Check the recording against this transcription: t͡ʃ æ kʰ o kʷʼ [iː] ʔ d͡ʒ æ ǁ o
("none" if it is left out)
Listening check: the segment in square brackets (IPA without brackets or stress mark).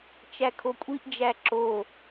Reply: i